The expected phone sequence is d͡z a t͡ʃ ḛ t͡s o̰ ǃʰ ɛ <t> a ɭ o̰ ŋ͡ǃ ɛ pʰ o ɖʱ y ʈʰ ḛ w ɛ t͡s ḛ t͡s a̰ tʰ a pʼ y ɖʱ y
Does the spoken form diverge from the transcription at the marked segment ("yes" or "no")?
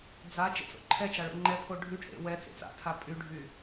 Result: yes